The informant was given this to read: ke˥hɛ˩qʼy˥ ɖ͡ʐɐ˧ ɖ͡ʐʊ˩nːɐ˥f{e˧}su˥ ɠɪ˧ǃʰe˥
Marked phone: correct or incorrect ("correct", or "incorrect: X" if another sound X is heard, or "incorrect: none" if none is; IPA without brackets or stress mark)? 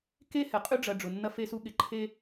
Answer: incorrect: e˥